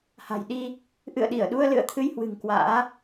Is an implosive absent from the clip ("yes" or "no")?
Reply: no